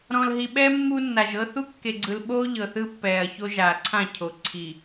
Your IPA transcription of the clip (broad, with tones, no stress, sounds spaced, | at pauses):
ɾ ɔ̃˨ l ɦ i˨ ɓ ɛː˦ mː u˦ nː a˨ ʒ ɤ˦ θ u˦ kː e˨ ɡ͡ǀ ɯ˨ l ɓ oː˦ ʎ ɤ˨ θ ɯ˦ pː ɛː˨ ɐ̯ ç o˦ ʒ aː˨ ǀʰ ã˦˨ cʰ o˨ ǀʰ i˨